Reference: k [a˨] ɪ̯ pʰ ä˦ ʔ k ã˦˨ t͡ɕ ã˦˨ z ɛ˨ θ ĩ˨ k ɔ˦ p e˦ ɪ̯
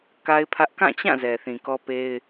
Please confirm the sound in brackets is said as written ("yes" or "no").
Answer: no